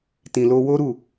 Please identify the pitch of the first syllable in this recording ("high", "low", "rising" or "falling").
low